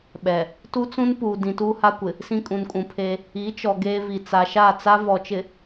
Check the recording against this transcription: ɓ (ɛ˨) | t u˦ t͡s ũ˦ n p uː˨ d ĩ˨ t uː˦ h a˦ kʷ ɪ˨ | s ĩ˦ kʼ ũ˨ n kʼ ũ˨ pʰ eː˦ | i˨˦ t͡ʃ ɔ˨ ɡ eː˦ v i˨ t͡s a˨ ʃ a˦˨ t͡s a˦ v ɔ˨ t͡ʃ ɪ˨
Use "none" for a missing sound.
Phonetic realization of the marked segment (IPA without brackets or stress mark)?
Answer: ɛ˨